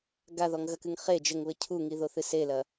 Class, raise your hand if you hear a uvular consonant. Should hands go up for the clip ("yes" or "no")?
yes